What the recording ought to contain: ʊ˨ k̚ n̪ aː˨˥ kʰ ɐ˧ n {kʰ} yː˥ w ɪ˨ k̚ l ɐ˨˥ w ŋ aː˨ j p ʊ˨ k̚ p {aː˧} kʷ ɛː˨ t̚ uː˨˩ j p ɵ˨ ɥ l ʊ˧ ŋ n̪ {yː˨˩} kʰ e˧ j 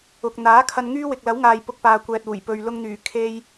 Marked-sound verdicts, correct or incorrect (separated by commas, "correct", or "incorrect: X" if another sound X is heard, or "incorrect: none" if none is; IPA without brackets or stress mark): incorrect: ŋ, incorrect: aː˨, correct